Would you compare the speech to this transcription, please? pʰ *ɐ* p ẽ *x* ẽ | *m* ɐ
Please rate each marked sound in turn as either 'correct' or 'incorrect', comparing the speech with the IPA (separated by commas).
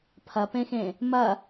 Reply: correct, correct, correct